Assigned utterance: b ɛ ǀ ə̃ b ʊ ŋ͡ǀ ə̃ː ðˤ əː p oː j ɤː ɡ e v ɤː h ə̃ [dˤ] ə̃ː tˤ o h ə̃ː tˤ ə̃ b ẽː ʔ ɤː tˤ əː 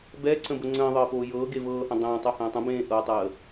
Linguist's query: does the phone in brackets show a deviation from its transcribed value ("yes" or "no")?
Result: no